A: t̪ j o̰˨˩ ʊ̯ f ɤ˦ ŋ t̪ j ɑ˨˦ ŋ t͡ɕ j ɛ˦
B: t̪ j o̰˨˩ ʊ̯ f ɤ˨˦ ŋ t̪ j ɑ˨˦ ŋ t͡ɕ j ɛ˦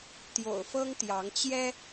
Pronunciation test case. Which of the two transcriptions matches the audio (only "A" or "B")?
A